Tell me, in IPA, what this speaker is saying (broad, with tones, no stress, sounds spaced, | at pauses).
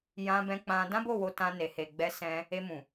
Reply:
j ã˧ b ɛ̃˧ k͡p ã˧ d ã˦ b o˦˨ w o˧ t ã˧ n e˨ h e˨ ɡ͡b ɛ˨˦ s ɛ̃˧ | e˧ m ũ˨